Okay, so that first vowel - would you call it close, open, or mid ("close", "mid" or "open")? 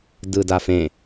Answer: close